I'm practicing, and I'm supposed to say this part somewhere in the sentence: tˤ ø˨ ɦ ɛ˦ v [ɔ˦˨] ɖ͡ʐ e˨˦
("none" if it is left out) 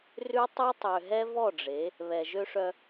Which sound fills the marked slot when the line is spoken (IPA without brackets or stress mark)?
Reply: ɔ˦˨